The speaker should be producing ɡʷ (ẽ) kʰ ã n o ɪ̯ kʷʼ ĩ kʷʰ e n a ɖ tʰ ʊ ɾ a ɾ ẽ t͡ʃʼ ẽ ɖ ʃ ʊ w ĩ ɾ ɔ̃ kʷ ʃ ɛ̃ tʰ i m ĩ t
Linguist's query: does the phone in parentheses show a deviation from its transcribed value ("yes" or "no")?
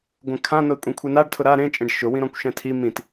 yes